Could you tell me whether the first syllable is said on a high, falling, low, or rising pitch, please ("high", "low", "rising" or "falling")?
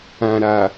low